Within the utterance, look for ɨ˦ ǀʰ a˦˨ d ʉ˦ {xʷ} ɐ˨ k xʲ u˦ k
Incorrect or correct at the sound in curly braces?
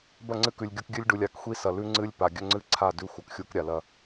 correct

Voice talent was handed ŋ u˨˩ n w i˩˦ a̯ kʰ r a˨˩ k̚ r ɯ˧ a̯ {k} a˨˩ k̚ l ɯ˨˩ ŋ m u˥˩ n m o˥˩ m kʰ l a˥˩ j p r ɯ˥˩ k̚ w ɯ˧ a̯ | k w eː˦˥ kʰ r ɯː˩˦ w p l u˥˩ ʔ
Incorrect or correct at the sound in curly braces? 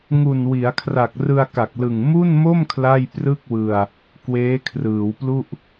correct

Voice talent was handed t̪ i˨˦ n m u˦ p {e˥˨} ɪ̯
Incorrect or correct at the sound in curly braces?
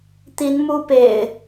incorrect: ḛ˨˩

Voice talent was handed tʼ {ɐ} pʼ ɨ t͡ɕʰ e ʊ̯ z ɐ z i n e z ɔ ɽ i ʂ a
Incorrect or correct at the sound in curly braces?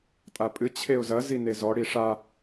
incorrect: a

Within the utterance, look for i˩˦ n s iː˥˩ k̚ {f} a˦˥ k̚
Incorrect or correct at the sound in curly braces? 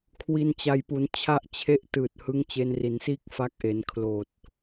correct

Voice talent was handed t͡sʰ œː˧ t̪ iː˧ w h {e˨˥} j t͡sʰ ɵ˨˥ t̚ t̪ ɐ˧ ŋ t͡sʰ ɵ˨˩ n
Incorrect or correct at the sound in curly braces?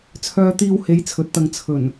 incorrect: e˨˧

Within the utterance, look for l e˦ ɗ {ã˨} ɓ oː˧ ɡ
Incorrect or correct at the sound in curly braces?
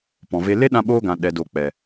incorrect: ã˧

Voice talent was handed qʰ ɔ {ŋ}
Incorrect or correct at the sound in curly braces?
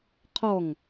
correct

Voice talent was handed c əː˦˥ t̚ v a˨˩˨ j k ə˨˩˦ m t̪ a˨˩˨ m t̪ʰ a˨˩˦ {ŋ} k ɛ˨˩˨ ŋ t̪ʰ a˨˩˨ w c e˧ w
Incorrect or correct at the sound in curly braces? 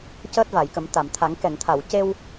correct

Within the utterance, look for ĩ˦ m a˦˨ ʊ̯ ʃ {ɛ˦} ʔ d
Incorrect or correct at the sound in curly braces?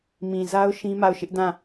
incorrect: ɪ˦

